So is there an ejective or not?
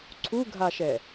no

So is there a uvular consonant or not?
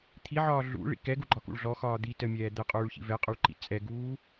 yes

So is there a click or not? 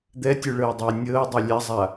no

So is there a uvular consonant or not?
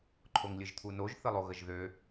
no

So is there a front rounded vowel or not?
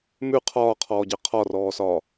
no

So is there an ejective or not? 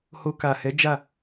no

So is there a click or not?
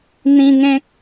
no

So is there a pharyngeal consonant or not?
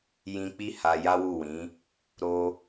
no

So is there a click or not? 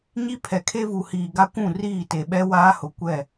no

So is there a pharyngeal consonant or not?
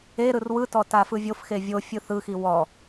no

